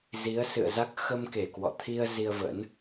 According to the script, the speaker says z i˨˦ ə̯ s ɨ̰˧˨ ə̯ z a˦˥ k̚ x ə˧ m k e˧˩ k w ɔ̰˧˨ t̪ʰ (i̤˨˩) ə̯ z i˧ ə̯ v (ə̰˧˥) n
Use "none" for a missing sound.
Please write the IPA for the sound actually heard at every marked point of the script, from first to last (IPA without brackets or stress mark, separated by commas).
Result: i˧, ə̰˧˥